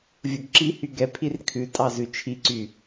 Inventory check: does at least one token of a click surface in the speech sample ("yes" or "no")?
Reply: yes